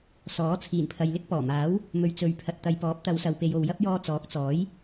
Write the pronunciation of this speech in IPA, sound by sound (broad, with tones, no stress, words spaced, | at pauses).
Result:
sɔː˨˥t͡sʰiː˨˩npʰɐ˨jlɪ˥k̚ pɔː˨˩maː˨˥w | mɵ˨ɥ t͡sɵ˨ɥ pʰɐ˨t̚t̪ɐ˨˧jpɔː˨˥p̚ t̪ɐ˨˧wsɐ˨wpe˨jo˨w jɐ˥p̚jɔː˧t͡sɔː˨˥k̚t͡sɔː˨˥j